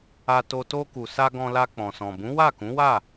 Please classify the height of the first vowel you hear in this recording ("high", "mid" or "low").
low